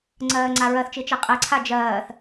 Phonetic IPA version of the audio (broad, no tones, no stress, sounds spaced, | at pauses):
ŋ͡ǀ ɜː ŋ͡ǀ a ɹ ɜ θ t͡ʃ i t͡ʃ ɛ qʼ ɛ ǀʰ a d͡ʒ ɜː θ